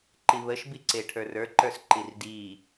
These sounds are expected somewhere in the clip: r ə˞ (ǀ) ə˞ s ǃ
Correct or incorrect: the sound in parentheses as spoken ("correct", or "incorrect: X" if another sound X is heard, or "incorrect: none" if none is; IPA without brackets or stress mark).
incorrect: ǃ